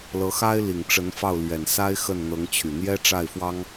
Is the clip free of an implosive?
yes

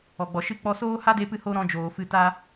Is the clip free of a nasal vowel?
no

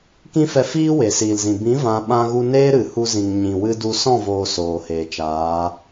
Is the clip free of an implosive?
no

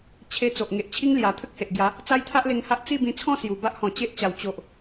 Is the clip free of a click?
yes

